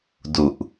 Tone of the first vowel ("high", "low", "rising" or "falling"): low